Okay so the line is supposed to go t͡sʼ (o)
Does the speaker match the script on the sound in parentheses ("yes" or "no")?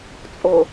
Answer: yes